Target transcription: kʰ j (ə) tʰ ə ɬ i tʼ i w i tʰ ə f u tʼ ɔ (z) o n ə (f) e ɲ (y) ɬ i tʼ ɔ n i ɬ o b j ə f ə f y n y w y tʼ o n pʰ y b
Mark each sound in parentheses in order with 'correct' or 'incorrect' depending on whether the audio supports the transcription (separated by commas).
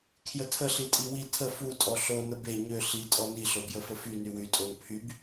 correct, incorrect, incorrect, incorrect